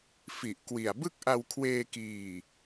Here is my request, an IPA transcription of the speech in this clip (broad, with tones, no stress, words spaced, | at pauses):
fi˨˩ʔkwi˨˩a̯ bɯ˥˩k̚ʔa˧wkʰweː˧kiː˨˩